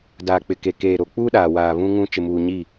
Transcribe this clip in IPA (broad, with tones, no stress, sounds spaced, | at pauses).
d aː˨ k͡p ɪ˨ k e˨ k eː˨ ɾ o˨ k͡p uː˦ ɗ aː˨ w aː˨ β ũ˦ ŋ ũ˦ t͡ʃ ɪ˨ m uː˨ ɲ i˦˨